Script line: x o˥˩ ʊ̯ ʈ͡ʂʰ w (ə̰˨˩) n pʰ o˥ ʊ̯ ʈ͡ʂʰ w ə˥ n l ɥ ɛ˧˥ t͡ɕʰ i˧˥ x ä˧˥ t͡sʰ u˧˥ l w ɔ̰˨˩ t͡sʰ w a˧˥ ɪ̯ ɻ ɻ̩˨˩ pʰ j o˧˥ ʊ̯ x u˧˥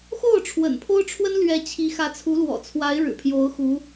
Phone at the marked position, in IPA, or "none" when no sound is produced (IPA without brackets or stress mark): ə̰˨˩